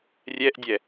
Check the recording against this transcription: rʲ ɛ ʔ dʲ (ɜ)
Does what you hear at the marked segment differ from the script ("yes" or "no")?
yes